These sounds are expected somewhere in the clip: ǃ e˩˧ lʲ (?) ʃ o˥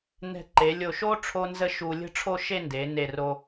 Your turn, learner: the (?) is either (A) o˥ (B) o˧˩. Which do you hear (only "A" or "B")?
B